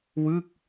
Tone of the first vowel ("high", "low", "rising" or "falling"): falling